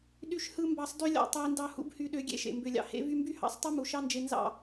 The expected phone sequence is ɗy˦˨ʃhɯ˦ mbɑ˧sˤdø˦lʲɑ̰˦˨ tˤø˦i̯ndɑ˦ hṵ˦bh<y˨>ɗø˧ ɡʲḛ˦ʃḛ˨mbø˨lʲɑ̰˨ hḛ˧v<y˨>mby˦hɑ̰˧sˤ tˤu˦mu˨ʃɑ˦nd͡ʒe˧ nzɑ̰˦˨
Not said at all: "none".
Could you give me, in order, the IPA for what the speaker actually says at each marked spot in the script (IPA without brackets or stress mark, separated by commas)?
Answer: y˧, y˧